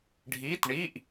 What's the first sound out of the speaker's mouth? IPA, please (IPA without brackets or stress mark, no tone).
ɖʱ